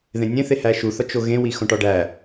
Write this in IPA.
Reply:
ð ẽ nʲ ẽ θ e h æ ʃ u θ ɒ t͡ʃ o ɣ ẽ w i x õ ʈ ɒ ɖ æ

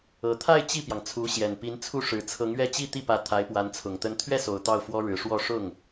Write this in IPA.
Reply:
ɤ˨˩ t̪ʰ a˥˧ ɪ̯ t͡ɕ i˥˩ p j ɑ˩ ŋ t͡sʰ u˧˥ ɕ j ɛ˨˩ n p i˧˥ n t͡sʰ u˥˩ ʂ ɻ̩˨˩ t͡sʰ ɤ˧˥ ŋ ɥ ɛ˥ t͡ɕ i˥˧ t̪ i˥˩ p ä˧˥ t̪ʰ a˧˥ ɪ̯ p w a˧˥ n t͡sʰ ʊ˨˩ ŋ t̪ ə˥ n t̪ʰ ɥ ɛ˥˩ s o˨˩ ʊ̯ t̪ ɑ˥˩ ʊ̯ f w ɔ˥ ɻ ɻ̩˧˥ ʂ w ɔ˥˧ ʂ ʊ˥˩ ŋ

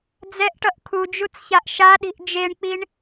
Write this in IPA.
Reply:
d͡z ɛ ʔ ʈ ʌ ʔ kʰ u d͡ʒ u t͡s ç a ʔ ʃ a ɗ i̤ ʔ d͡ʒ e ɳ k͡p i ɳ

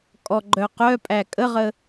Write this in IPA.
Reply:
kʼ ɔ ɡ͡ǃ œ q œ pʼ æ kʼ ə ʁ ə

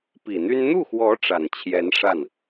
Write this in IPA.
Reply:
p i˨˩ n̪ y˥ n n̪ u˥˩ x w ɔ˧˥ ʈ͡ʂ a˨˩ n t͡ɕʰ j ɛ˧˥ n ʂ a˥˩ n

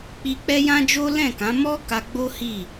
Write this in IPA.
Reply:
k͡p i˧ k͡p ɛ˦ j ã˦ d͡ʒ o˦ l ɛ̃˦˨ k ã˨˦ m ɔ˦ k a˧ ɡ͡b o˦ h i˦˨

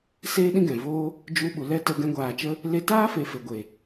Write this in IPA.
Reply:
s eː˦ ɗ ĩ˦ ɡ ɛ̃˨ v oː˦ | d͡ʒ u˧ ɓ u˨ l ɛ˦ t ə˧ ɡ ɛ̃˧ ɡʷ aː˨ t͡ʃ ə˦ | l e˧ t aː˦ f e˨ f e˨ ɡʷ e˨

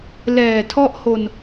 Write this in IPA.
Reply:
l ɛː˨˩ tʰ ɔ˥˩ ʔ h o˧ n

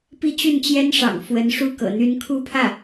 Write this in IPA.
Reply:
p i˥˧ t͡ɕ y˥˩ n t͡ɕ j ɛ˥ n ʂ ɑ̰˨˩ ŋ f w ə˧˥ n ʂ u˥ k ɤ̰˨˩ n̪ y˧˥ n kʰ u˥˧ pʰ ä˥˩

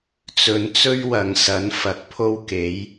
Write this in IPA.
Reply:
t͡s ɵ˨˧ n t͡s ɵ˥ ɥ w ɐ˨ ŋ s ɐ˨˥ n f ɐ˨ k̚ pʰ o˥ w k e˨˥ j

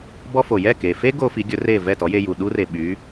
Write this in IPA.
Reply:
b ɔ˥ f o˩ j ɛ˥˩ k e˩ f e˥ ɡ o˥ f i˩˥ ɡʲ ɵ˩˥ r e˥˩ v ɛ˥˩ t ɔ˩˥ j e˧ j u˩ ɗ u˥ r e˩ ɓ y˩˥

